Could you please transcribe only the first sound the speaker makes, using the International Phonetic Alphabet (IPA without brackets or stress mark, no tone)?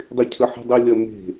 dˤ